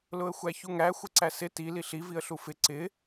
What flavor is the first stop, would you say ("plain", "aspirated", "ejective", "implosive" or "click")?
click